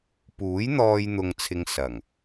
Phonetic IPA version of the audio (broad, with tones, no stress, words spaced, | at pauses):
puː˨˥jn̪ɔː˧j n̪ʊ˧ŋt͡sʰɪ˧ŋ sɐ˨˩ŋ